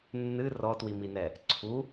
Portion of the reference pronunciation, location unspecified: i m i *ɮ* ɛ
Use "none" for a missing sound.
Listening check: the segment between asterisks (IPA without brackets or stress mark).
n